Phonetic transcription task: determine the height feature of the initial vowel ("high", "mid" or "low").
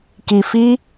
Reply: high